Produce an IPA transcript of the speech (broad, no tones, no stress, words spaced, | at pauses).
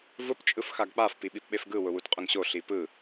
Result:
vʊp t͡ʃʼɯfxaɡk͡paf piɓipɓefɡɯ wʊwutqʼʊŋɕo ɬipɯ